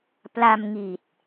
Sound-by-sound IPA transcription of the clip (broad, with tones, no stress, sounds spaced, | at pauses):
p l a˧ m ŋ i˨˩ t̚